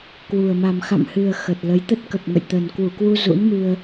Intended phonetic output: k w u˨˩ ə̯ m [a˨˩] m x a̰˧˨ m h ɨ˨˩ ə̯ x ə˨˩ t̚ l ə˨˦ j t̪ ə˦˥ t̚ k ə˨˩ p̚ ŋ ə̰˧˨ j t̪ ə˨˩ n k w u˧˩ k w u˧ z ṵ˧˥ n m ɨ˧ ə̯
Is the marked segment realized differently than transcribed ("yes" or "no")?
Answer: no